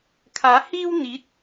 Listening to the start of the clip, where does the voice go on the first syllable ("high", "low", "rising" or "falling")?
rising